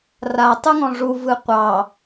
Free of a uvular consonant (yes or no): no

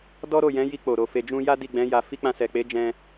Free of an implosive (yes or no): yes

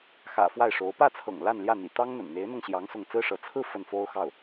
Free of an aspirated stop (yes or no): no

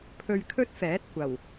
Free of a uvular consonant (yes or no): yes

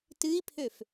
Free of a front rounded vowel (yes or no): no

